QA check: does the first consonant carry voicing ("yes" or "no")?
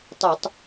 no